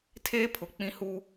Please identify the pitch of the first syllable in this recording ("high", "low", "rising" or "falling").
high